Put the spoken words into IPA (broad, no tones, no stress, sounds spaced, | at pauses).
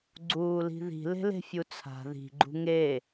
ɡ͡ǀ uː l i̤ ð i̤ l e̤ l e̤ fʲ u t͡sʰ a̤ ð i̤ ɡ͡ǃ ṳ ŋ e